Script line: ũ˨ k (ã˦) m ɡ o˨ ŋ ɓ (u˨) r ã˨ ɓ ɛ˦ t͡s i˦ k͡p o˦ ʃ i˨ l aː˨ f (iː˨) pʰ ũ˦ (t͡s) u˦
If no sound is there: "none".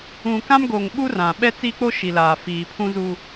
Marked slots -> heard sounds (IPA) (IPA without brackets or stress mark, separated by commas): ã˦, u˦, iː˨, z